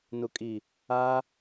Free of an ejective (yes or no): no